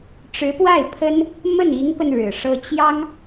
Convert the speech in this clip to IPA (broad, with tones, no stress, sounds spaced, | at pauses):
ʈ͡ʂ ɻ̩˧˥ p w a˥˩ ɪ̯ pʰ ə˥ n | m ə˥˩ n i˧˥ ŋ p ə˧ n ɻ ɻ̩˨˩ ʂ ɤ˥ t͡ɕ j ɑ˥ ŋ